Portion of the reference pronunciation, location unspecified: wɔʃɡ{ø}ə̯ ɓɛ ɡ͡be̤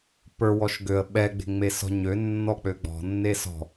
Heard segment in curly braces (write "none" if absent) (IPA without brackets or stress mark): ø